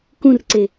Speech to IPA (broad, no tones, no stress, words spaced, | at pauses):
kũrǀe